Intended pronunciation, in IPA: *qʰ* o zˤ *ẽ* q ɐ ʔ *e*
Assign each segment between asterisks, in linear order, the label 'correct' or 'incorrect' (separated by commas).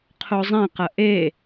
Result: correct, correct, correct